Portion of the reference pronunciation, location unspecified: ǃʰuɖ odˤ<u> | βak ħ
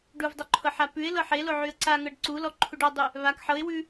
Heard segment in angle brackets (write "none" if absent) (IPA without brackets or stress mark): ʉ